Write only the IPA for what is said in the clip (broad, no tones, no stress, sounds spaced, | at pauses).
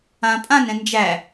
ã pʼ ã n ɛ̃ n d͡ʒ æ